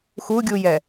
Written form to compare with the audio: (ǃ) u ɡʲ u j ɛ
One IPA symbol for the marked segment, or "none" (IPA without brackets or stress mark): x